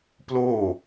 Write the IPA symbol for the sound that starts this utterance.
p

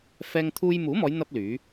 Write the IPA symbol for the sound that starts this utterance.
f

